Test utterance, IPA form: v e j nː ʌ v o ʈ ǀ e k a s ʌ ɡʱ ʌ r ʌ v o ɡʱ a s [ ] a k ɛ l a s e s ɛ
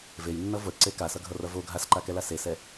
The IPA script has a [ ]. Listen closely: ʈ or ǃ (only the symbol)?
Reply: ǃ